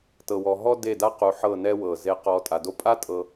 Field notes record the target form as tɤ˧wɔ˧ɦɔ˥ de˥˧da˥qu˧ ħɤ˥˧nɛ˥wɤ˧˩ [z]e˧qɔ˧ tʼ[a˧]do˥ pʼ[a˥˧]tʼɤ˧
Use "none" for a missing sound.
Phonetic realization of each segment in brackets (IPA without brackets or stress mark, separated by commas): z, a˧, a˥